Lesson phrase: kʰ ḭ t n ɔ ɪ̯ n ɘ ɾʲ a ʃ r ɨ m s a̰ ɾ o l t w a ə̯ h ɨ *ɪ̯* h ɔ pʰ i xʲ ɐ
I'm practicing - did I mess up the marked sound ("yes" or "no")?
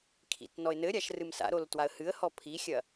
yes